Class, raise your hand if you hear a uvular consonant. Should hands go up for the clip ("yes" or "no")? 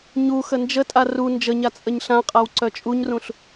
yes